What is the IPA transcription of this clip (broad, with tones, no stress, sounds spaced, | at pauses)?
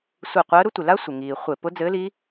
sʷ i˧˩ qʷ əː˧˥ ɾ ʊ˧˥ tʷ ɪ˩ l a˥ sʷ ɪ˩ ŋ iː˩ χʷ ɪ˧˩˧ p ʊ˧˥ d͡z ɘː˧˥ l i˧˥